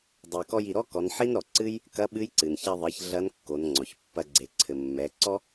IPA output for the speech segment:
dˤ e˩ k ɔ˧ j i˩ ɾ ɔ˥ k ɔ˩˧ n ħ i˥ n ɾ ɔ˩ ǀ ɨ˥ j | k ɐ˧˥ ɓ ɨ˧˥ j ǀ ɨ˩ n ç ɛ˧ ðˤ e˩˧ ç ɮ ɐ˧˥ n kː o˩˧ n ŋ͡ǀ ɔ˩ ç pː ɐ˧ ɡ͡ǀ e˩ ǀʰ ɘ˩ mː ɛ˩˧ ǀ ɔ˥

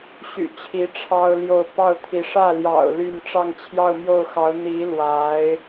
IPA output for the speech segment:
ɕ y̰˨˩ t͡ɕʰ i˧˥ ʈ͡ʂʰ ɑ˥ ʊ̯ l j o˥˧ ʊ̯ p ɑ˥˩ ʊ̯ t̪ʰ i˧˥ ʂ ä˥˩ l j ɑ̰˨˩ ʊ̯ l y˥˧ n ʈ͡ʂ ɑ˥˧ ŋ t͡ɕʰ j ɑ˥˧ ʊ̯ m j o˥˩ ʊ̯ x ɑ˧˥ ʊ̯ n̪ i˧˥ l w a˧˥ ɪ̯

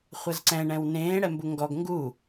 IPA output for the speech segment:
χʷ a z ǀ ɛ̃ ɳ ɛ̃ w n ẽː ɽ ɛ m b u ŋ ɡ ɔ ɡ ŋ ɡ u

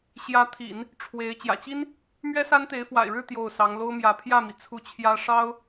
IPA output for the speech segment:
ɕ j ä˧˥ t̪ʰ ḭ˨˩˦ n | ʈ͡ʂʰ w e˧˥ ɪ̯ t͡ɕ j ä̰˨˩ t͡ɕ i˥ n | m ɥ ɛ˥ s a˥ n t̪ e˧˥ ɪ̯ f w a̰˨˩ ɪ̯ ɻ ɻ̩˥˧ t̪ j o˥˩ ʊ̯ s ɑ˧˥ ŋ l o˥ ʊ̯ m j ä˧˥ pʰ j ä˥˩ m i˩ t͡sʰ u˥˩ t͡ɕʰ j ä˥ ʂ ɑ˥ ʊ̯

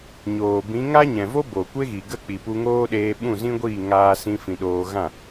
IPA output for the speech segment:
ɲ oː˨ b ĩ˨˦ ŋ a˦ ɲ ɛ̃˨ v o˦ b o˨ kʷ e˦ ɣ i˨ ɡ ə˦˨ k͡p i˨ p u˧ ŋ oː˦ ɗ eː˧ ɓ ũ˦˨ z ĩ˦ ɡʷ iː˦˨ ŋ aː˧ s ĩ˦ f ĩ˧ ɗ oː˧ ɣ ã˦˨

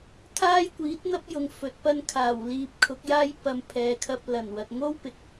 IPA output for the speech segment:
t̪ʰ aː˥ j kʷ iː˨˥ t̚ n̪ ɐ˥ p̚ j ʊ˨ ŋ f ɵ˨ t̚ p ɐ˥ n kʰ aː˨˩ w l iː˧ p̚ kʰ ʊ˨˥ k̚ j aː˥ j p ɐ˨ m pʰ ɛː˨˧ kʰ ɐ˧ p̚ l ɐ˨˩ n w ɐ˨ t̚ ŋ o˥ w p ɪ˧ k̚

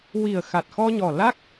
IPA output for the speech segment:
w i˨˩ ə̯ x a˨˩ t̚ x ɔ˧ ɲ ɔ˨˩ l a˦˥ k̚

